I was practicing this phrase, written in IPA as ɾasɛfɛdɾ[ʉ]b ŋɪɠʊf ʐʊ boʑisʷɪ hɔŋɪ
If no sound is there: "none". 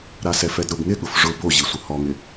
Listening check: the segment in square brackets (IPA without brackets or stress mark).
ʊ